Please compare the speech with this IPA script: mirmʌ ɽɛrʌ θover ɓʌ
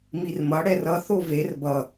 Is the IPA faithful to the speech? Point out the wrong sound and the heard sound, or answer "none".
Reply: ɓ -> b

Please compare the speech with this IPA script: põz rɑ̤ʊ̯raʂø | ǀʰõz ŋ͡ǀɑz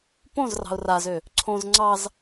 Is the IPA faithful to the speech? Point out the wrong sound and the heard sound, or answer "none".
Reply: ʂ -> z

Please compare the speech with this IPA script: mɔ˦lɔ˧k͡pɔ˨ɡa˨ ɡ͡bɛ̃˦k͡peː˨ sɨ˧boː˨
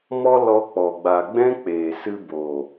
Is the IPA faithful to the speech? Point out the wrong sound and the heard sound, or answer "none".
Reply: ɡ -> ɡ͡b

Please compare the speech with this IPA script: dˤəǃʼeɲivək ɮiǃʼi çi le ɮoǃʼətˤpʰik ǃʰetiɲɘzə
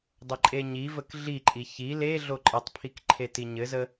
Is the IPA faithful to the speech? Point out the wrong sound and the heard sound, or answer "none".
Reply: none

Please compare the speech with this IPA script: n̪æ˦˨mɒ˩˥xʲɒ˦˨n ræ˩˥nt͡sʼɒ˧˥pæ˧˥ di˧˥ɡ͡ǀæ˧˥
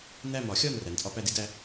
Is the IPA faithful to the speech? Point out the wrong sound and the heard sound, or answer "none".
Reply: ɡ͡ǀ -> d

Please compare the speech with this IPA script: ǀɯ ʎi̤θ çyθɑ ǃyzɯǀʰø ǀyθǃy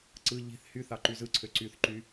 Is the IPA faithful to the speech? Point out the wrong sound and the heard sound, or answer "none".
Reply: ç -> h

